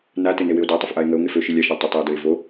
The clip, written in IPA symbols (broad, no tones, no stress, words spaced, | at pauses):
natɪ newɪo̯datˤɪf ʔae̯ŋəo̯ ŋefø ʃilʲaʃa tˤətˤio̯døe̯ vo